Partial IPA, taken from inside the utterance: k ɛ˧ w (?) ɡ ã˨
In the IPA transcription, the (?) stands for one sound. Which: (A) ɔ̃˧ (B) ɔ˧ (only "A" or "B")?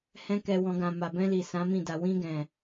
A